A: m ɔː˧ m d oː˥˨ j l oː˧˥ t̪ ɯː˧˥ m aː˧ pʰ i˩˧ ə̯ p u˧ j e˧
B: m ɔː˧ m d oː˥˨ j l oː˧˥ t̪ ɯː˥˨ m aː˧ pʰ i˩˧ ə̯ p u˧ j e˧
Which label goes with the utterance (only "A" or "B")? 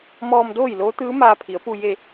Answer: A